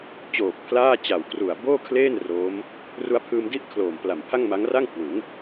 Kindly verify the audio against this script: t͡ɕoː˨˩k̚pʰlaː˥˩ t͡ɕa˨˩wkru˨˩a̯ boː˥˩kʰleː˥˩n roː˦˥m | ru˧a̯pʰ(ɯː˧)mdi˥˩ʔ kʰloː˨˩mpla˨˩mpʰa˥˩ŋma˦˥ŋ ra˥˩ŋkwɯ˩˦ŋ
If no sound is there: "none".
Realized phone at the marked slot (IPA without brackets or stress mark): ɯː˧